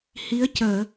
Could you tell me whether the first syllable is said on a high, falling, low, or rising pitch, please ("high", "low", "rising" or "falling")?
rising